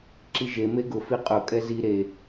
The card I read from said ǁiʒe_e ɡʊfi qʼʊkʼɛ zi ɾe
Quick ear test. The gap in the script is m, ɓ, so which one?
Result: m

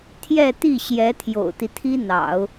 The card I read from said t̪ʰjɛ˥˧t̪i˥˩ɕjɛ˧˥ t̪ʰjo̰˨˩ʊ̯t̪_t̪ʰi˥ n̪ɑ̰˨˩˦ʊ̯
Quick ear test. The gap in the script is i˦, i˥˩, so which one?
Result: i˦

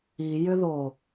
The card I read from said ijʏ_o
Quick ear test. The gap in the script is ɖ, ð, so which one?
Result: ð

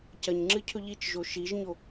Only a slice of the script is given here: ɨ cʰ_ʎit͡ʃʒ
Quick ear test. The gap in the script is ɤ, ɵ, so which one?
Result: ɵ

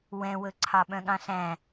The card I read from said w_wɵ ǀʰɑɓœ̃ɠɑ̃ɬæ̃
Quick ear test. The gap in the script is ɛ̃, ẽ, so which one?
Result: ɛ̃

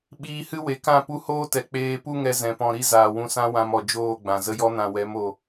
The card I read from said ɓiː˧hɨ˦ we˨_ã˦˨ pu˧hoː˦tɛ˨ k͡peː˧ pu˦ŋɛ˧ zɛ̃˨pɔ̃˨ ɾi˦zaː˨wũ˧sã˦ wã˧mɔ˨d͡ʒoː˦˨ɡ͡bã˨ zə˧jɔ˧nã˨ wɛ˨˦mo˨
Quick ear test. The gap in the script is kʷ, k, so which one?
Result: k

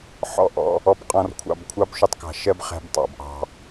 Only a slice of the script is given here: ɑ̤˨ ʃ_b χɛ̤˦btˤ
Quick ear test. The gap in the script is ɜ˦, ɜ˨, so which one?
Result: ɜ˦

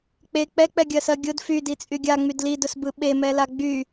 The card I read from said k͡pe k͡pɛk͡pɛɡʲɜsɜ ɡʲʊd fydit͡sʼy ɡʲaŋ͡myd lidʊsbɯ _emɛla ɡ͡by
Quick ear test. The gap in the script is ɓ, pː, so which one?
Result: ɓ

